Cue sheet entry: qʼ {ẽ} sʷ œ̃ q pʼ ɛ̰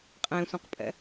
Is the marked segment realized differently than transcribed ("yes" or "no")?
no